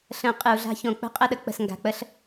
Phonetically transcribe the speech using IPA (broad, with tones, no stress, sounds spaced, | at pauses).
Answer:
ɬ ə̃˨˦ qʼ ɨ˨ u̯ ɮ a̤˦ ç õ˨ k͡p ə̤˦ qʼ ə˦˨ ɗ ə˦ k͡p ə̤˨ s ŋ ɡ a̤˨ k͡p ə˦ ɬ